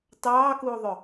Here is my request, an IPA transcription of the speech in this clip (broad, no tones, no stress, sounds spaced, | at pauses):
t ɑː k uː ðˤ ɵ